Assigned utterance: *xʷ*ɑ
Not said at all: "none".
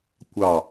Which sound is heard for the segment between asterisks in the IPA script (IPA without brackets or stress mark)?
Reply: kʷ